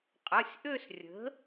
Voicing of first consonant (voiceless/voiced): voiceless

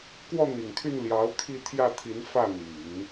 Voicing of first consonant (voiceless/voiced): voiceless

